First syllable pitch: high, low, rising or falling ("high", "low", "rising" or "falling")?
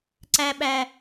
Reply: high